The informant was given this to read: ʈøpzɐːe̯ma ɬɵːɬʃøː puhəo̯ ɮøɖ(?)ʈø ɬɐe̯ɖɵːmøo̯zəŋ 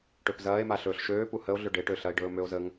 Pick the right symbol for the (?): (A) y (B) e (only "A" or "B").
B